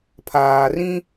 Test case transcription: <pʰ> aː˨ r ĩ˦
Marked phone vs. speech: correct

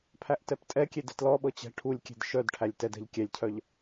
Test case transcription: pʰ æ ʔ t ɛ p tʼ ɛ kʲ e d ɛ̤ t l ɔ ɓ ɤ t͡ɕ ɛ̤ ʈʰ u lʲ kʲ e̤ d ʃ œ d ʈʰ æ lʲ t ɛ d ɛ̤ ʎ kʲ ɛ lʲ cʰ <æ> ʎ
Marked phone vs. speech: incorrect: œ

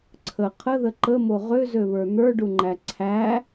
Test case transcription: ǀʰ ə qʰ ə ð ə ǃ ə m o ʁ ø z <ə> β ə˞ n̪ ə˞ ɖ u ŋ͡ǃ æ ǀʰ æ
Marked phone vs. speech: incorrect: ø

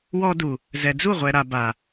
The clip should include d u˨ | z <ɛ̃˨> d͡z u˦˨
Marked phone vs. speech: incorrect: ɛ˨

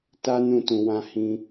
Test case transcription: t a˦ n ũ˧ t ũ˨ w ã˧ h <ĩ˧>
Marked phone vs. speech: correct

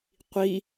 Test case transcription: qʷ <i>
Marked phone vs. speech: correct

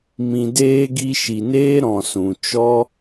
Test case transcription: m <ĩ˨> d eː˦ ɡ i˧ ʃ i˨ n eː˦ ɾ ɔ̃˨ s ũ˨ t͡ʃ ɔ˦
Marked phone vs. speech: correct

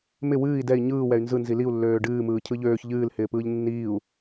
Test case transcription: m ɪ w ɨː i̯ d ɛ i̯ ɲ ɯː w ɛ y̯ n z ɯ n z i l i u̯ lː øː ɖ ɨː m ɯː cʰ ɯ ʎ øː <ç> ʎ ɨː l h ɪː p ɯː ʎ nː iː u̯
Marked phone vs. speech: correct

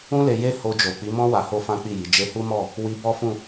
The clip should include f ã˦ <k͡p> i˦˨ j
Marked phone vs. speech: correct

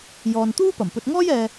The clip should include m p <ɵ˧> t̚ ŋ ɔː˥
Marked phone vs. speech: correct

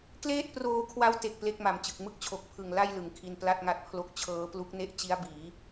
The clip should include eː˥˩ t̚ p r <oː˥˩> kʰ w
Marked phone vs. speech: incorrect: oː˧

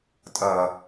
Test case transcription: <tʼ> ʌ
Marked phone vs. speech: correct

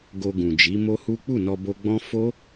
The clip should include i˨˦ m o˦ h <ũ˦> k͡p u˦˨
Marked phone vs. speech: incorrect: u˦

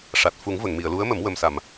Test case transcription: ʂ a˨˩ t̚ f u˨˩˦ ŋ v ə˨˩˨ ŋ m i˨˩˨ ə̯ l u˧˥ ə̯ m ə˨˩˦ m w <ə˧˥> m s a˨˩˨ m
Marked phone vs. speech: incorrect: ə˨˩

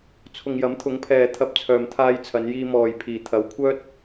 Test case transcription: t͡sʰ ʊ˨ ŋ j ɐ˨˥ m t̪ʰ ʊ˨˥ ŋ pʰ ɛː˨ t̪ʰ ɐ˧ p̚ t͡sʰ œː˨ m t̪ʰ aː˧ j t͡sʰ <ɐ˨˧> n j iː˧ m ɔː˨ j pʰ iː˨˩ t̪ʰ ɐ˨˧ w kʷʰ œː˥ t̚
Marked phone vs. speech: correct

